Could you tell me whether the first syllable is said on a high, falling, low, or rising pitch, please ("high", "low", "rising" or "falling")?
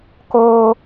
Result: high